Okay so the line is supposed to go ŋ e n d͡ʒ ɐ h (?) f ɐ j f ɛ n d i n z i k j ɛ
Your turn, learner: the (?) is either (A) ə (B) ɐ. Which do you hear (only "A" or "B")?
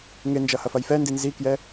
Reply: B